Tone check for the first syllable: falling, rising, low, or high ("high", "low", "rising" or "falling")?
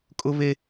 high